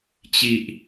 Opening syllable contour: low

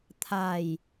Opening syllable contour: low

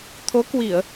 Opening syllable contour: rising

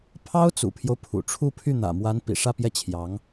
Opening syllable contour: high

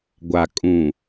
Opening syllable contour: low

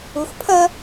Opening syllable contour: low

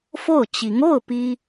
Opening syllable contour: falling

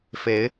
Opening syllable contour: rising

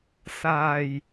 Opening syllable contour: low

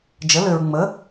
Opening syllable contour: rising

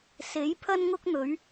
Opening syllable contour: rising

